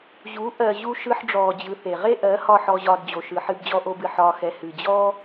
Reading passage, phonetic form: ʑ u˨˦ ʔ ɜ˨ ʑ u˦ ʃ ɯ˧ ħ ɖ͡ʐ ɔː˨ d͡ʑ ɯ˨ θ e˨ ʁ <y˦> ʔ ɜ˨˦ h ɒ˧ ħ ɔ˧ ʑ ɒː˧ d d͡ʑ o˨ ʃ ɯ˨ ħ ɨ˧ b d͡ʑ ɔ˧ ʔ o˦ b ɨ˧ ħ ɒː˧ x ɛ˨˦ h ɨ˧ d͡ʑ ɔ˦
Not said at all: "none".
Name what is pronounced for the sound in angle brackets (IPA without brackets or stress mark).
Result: e˦